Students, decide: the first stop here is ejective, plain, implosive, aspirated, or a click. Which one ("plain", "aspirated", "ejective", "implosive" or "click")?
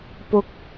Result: plain